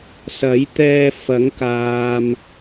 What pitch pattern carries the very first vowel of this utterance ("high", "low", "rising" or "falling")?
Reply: rising